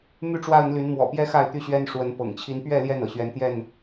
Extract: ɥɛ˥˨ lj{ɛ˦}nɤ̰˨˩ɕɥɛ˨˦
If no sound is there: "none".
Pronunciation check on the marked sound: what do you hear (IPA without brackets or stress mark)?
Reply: ɛ˥˨